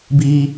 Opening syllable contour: high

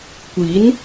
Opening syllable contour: rising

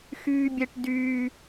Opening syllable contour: high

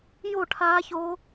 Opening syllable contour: falling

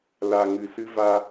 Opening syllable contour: low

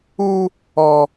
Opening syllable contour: high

